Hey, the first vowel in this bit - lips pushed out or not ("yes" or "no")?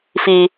no